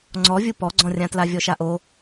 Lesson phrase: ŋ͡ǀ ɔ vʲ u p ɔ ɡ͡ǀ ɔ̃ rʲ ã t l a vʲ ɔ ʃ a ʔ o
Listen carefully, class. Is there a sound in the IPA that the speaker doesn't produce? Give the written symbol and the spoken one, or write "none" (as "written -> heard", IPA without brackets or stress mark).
none